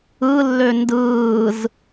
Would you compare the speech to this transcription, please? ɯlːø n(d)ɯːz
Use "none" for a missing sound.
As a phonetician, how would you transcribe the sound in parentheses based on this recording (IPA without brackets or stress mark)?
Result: d